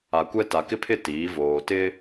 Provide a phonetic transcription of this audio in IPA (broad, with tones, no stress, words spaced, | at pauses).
a˨kʷɛ˦ ta˨kɪ˦pʰɪ˦˨ tiː˨˦voː˨tɪ˦